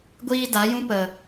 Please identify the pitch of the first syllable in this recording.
high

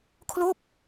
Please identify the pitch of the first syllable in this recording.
falling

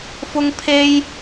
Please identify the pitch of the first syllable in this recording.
high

